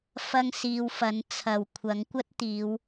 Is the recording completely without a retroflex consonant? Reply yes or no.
yes